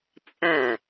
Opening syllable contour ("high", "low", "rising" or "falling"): falling